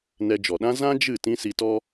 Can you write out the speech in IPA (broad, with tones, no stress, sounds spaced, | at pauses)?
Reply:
n ɛ˧ d͡ʒ ɔ˨ ɗ ã˦ z ã˦ d͡ʒ ɨ˦˨ t ĩ˦ s i˧ t ɔ˦